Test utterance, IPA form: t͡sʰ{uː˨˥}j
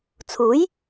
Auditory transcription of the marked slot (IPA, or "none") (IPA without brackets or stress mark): uː˨˥